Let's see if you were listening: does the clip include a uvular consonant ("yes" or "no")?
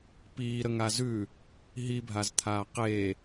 yes